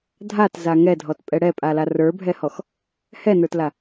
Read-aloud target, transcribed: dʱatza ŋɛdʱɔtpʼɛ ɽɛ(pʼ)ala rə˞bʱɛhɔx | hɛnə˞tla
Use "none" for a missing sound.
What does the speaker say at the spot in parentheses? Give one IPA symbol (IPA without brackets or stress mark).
pʼ